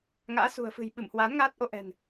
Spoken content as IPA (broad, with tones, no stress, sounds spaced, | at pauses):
ŋ a̰ː˧˥ s ṳ˨˩ ə̯ f ɨ̤˨˩ j ɓ ɨ˧˩ m h w aː˨˦ n ŋ aː˦˥ t̚ ʔ o˧ ʔ ɛ̤˨˩ n